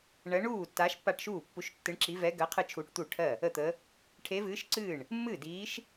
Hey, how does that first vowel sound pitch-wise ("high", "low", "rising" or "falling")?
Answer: rising